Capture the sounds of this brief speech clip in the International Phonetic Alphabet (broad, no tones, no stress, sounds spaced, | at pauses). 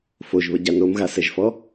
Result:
f o ʒ β ə ɟ a n o m ɣ a s ɛ ʒ f ɔ